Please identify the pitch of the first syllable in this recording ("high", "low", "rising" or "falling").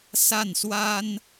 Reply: falling